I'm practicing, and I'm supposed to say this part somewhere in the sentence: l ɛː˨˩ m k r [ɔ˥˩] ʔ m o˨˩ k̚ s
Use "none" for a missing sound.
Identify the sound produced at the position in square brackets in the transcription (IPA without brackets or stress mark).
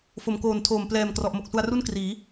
ɔ˨˩